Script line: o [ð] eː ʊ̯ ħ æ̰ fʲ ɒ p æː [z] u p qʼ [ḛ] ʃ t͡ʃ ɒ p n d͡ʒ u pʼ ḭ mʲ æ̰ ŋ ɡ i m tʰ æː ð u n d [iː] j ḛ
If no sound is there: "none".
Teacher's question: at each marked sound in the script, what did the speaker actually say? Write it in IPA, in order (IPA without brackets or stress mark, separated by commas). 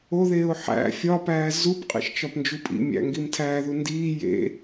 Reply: ð, z, ḭ, iː